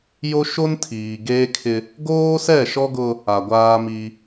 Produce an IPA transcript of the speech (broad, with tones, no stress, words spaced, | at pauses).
jo˦ ʃo˦ntʰiː˨ ɡeː˦kʰɪ˦ | ɡoː˦sɛ˦˨ʃɔ˦ɡʊ˦ | a˨ɡʷaː˦mi˦